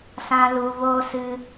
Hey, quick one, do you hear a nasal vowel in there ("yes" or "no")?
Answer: yes